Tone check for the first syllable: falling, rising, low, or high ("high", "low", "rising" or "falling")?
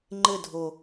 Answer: falling